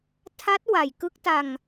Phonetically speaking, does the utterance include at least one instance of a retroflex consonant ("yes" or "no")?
no